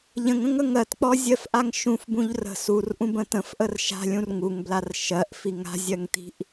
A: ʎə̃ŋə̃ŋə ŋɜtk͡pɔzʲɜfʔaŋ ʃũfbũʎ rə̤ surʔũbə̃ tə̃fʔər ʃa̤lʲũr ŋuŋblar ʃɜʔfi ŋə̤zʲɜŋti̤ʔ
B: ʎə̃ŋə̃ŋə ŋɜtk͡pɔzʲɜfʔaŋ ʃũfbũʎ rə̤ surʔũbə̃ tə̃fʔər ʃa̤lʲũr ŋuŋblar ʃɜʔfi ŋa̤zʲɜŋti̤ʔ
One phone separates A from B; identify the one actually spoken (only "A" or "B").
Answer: B